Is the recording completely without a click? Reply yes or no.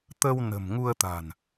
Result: yes